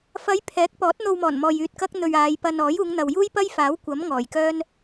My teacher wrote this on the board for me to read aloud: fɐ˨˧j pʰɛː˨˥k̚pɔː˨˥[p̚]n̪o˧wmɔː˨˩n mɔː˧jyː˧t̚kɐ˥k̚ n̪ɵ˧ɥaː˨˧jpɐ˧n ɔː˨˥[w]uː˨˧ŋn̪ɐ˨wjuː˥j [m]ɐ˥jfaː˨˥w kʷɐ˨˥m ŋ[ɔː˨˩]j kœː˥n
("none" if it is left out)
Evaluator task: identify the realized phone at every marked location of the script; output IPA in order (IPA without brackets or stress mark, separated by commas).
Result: t̚, j, p, ɔː˨˩